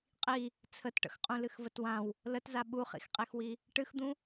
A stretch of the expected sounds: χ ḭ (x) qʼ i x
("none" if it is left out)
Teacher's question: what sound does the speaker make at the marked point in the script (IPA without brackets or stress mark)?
x